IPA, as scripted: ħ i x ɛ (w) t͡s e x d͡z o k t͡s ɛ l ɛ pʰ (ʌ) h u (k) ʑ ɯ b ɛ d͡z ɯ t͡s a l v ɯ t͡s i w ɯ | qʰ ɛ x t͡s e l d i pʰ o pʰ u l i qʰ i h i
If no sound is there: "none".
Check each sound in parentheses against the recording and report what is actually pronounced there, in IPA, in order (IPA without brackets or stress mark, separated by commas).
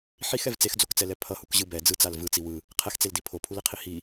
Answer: v, ʌ, k